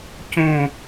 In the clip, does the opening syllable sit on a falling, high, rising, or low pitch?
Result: falling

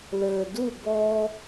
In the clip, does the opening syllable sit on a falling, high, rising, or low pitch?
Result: low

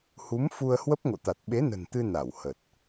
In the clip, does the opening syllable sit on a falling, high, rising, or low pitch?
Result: rising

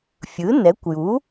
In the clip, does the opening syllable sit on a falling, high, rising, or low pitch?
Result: rising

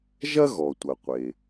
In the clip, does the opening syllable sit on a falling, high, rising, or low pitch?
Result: high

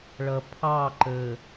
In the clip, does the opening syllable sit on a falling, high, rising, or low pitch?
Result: low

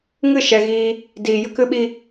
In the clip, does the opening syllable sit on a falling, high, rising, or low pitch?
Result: falling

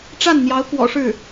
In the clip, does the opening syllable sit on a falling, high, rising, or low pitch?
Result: falling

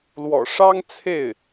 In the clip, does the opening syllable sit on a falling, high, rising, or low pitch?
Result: low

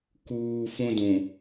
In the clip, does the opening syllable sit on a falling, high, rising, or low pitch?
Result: low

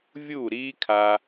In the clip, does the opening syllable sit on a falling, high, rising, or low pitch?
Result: falling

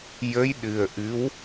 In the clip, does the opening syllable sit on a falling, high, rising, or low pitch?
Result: rising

